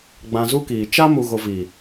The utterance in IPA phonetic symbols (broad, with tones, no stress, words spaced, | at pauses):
ɡ͡bã˧zu˦kiː˨ t͡ʃa˦ mu˧ɣo˧ vi˨